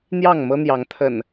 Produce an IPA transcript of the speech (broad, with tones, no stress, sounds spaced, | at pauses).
n̪ j ɑ˥˨ ŋ m ɤ˦ n̪ j ɑ˨˦ ŋ t̪ʰ ə̰˨˩ n